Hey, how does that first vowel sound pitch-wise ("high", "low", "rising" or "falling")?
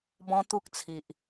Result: high